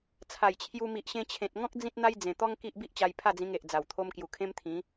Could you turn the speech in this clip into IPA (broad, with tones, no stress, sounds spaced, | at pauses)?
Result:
t͡sʰ a˨˩ j t͡ɕʰ j u˧ m i˨ ʔ ɕ ẽ˧ t͡ɕʰ ẽ˨ t̚ ŋ ɔ̃˦ k̚ d͡z ĩ˦ t̚ n̪ a˦ j d͡z ẽ˨˩ t̪ ɔ˦ ŋ k i˦ ʔ b i˦ ʔ t͡ɕ a˧ j pʰ a˥˧ d͡z ĩ˧ ŋ e˨ ʔ d͡z a˨˩ w t̪ʰ o˧ m k j u˨˩ kʰ ẽ˦ m t̪ʰ ĩ˨˦